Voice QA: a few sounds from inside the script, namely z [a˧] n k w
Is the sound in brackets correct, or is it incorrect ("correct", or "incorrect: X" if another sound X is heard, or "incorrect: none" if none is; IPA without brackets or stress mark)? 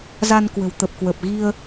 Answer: correct